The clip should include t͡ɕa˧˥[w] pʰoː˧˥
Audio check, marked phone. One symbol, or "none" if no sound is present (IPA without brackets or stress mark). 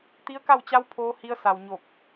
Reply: w